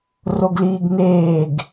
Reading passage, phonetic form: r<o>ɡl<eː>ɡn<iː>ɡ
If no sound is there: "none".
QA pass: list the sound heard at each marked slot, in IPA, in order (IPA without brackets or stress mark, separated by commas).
o, iː, eː